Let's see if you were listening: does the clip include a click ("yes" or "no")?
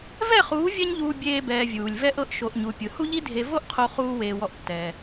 no